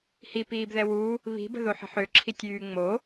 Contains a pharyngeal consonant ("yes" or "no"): yes